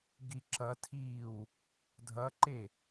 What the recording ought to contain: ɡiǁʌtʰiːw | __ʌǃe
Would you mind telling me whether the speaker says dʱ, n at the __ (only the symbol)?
dʱ